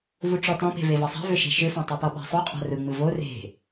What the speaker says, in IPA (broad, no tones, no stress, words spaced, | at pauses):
vuʈ͡ʂɔtɔ̃pe̤ vevɐsˤa̤ vʏʃe̤ʃʏfã tˤopɔɓa̤sˤu qʼa̤rɯ ŋ͡mɯvo re̤